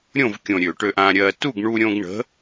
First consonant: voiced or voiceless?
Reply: voiced